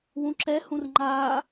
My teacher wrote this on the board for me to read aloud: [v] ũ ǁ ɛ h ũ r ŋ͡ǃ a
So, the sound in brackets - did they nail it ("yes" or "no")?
no